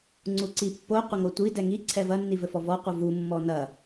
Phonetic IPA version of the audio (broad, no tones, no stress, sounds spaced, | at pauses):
ŋ͡ǀ u ǀ i pː o qʷ ɘ ŋ o tʷ i d ɛ ŋ i ǀʰ ɛ v ɐ nː i v ɘ f ɔ v ɔ qʷ ɨ v u mː ɔ n ɐ